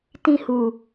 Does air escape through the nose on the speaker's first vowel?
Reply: yes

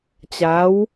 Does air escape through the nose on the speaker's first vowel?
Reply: no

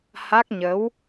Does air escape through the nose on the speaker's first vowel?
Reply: no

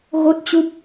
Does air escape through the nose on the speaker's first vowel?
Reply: no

